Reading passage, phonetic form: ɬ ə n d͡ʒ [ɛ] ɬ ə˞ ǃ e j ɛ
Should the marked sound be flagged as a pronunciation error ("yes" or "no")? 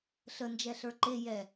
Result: no